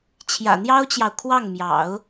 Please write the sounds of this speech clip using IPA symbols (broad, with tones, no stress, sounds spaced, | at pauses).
t͡ɕʰ j ä̰˨˩ n̪ j ɑ˥ ʊ̯ t͡ɕ j ɑ˨ ʊ̯ kʰ w ɑ˥˩ ŋ m j ɑ̰˨˩˦ ʊ̯